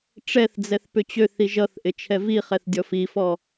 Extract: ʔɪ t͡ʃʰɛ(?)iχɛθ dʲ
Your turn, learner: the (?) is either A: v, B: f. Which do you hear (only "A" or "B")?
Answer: A